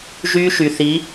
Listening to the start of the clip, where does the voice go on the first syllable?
high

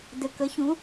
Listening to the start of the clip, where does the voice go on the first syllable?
low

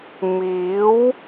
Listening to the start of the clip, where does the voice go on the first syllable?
rising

